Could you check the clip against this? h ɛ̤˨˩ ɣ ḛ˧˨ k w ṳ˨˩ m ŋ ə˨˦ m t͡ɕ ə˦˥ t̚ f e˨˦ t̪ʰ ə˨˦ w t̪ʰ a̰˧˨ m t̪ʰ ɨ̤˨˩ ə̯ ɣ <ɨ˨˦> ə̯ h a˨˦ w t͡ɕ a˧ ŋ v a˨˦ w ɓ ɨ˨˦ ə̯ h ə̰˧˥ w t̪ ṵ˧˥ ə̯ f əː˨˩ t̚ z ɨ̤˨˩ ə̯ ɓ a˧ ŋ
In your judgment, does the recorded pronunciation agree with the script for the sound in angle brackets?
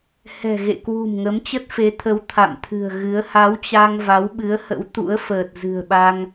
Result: yes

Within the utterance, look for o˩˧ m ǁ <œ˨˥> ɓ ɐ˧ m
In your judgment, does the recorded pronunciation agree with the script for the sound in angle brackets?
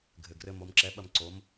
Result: no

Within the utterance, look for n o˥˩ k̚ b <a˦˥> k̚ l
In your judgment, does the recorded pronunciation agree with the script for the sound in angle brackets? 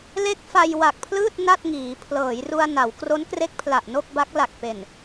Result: yes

